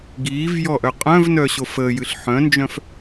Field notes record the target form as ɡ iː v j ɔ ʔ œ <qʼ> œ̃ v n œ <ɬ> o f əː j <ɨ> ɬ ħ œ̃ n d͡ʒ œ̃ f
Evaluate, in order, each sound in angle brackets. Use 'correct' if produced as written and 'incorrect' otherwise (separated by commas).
correct, incorrect, correct